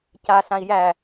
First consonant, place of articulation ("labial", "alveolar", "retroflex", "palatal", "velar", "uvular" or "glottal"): palatal